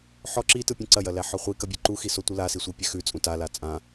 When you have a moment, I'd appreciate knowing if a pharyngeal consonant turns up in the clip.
yes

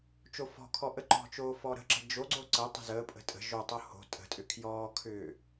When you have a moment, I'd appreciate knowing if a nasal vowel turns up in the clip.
no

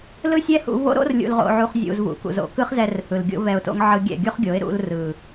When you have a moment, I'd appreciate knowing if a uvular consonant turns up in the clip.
yes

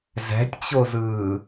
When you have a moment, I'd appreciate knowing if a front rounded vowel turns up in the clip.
no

